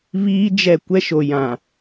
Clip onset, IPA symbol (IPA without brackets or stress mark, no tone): β